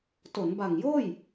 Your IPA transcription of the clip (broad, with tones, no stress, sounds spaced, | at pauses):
t o˩˦ n b a˨˩ ŋ j oː˥˩ j